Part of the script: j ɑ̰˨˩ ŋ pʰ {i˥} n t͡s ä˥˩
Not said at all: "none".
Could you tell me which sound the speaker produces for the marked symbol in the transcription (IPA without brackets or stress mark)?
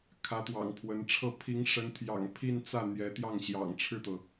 i˥˧